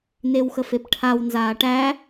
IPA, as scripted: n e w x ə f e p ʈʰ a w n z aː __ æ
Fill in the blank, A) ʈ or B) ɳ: A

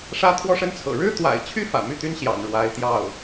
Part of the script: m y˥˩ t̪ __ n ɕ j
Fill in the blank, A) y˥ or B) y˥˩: A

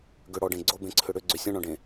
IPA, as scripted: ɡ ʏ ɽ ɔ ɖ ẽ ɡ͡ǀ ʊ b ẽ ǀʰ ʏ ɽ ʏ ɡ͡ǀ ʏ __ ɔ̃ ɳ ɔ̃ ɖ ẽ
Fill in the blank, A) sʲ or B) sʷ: A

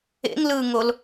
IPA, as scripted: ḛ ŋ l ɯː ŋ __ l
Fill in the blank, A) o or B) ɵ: A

